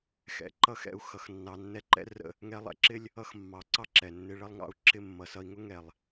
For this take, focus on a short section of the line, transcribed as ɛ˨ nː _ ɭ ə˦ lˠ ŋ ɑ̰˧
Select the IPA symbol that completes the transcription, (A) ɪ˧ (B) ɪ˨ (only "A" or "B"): A